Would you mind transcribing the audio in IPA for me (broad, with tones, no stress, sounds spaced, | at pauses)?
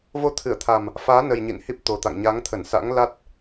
v o˨˦ t̪ʰ ɨ˧˩ ə̯ t̪ʰ a˨˩ m | f aː˨˦ n ə˨˩ j ɲ ḭ˧˨ n h i˦˥ p̚ t̪ o˨˩ t̪ a̰˧˨ ŋ ɲ a˨˦ ŋ t̪ʰ ə˧˩ n s a̰˧˥ ŋ l a˦˥ t̚